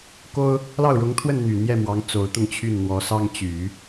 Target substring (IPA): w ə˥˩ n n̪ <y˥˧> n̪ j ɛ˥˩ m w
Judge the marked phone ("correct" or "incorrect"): incorrect